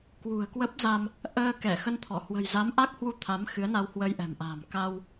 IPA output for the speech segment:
k w ṳ˨˩ ə̯ k w ə˦˥ p̚ z a˧ m | ʔ əː˧ k ɛ˧˩ x ə˧ n t̪ʰ ɔ˧˩ h w ə̤˨˩ j z a˨˦ m ʔ a˦˥ k̚ h w u˧ t̪ʰ a˨˦ m x ɨ˨˦ ə̯ n a˧ w h w ə˧ j ʔ ɛ̤˨˩ m ʔ a̤˨˩ m k a˧ w

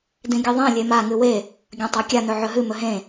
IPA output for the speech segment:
d ĩ ɡʲ ɨ ðˤ ẽ lʲ e m a ŋ ɨ w e | ɡʲ ɐ̃ tˤ a kʲ a n ɵ ʕ ɵ ɦ ɨ m ɵ ɦ ẽ

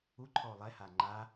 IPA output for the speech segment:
u ǃʰ ɔ o̯ lˠ ɛ h a ŋ͡ǃ a

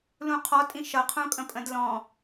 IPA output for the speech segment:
l ũ qʰ ɔ tʼ ĩ ʃ ʌ qʰ ũ kʼ ə̃ pʼ ə̃ d l ɔ̃

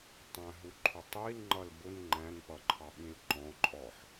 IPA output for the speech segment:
tˤ æ̃ ɦ u ǃʰ ʊ tˤ i l ŋ͡ǃ ʌ l b ʊ n ŋ͡ǃ æ̃ n p ʌ ǃʰ ɑ ɓ ĩ l ǃ ɔ̃ ǃʼ ɔ ħ

